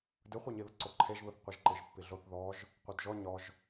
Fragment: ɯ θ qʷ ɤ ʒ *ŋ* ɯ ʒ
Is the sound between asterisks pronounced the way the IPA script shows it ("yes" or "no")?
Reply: no